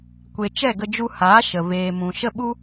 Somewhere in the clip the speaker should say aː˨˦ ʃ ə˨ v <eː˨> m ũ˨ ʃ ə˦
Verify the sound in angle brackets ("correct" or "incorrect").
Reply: correct